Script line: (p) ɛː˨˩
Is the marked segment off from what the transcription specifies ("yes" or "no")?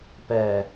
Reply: no